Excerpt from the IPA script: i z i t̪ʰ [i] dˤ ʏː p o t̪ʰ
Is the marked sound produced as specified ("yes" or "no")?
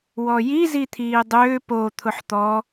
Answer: no